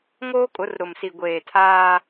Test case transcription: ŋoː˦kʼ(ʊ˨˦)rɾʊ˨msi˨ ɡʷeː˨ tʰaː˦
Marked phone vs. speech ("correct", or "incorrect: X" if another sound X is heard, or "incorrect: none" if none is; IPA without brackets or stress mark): correct